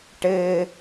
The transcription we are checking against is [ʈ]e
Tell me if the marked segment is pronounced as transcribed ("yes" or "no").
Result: yes